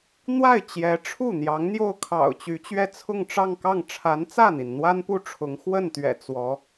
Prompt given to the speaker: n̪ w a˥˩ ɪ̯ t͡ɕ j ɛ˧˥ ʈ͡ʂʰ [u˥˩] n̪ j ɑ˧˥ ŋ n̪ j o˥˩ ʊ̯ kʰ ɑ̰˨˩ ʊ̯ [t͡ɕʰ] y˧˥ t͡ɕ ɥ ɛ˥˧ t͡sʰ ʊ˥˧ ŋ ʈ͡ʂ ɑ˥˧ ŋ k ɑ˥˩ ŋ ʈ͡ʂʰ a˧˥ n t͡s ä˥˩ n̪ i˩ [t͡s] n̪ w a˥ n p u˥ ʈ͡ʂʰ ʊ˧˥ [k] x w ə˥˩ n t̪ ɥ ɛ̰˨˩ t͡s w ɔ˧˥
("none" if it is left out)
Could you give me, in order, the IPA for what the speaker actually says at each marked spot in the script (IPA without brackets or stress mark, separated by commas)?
u˥˩, t͡ɕ, n, ŋ